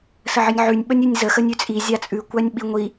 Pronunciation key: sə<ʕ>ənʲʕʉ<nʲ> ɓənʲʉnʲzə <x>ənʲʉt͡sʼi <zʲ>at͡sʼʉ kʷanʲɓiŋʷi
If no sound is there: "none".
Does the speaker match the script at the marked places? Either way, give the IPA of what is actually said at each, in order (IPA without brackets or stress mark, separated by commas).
ʕ, nʲ, x, zʲ